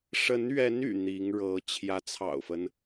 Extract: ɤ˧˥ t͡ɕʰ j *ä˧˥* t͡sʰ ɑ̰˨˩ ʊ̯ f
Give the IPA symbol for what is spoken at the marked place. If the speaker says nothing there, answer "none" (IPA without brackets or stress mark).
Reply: ä˧˥